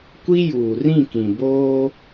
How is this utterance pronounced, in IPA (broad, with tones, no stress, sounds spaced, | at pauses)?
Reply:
kʷ i˦ j uː˨ r ĩ˦˨ k ĩ˨ b oː˦